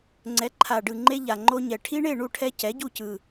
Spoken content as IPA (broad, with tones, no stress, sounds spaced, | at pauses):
ŋ͡ǀ ɛ˩˥ ǃʰ a˨˩ ɖ ɯ˨˩ ŋ͡ǃ e˦ ʎ a˨˩ ŋ͡ǃ o˦ ɲ ɛ˨˩ ʈʰ i˦ ɳ e˥˨ ɳ u˥˨ ʈʰ ɛ˦ c ɛ˩˥ ɟ u˥˨ c ɯ˨˩